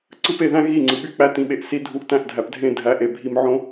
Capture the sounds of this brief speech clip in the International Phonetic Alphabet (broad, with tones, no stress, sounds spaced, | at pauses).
ǀ ɯ˦ p e˧ ð æ̃˦ ɣ i˦˨ ŋ͡ǀ ɯ˨ ɓ y˦ k͡p æ˧ t ĩ˨ ɓ e˨ ʔ s i˧ dʱ u˧ ʔ t æ̃˦˨ ʔ dʱ æ˨ p dʱ ẽ˦˨ dʱ æ˨˦ ʔ e˨ bʱ i˧ m ʕ õ˦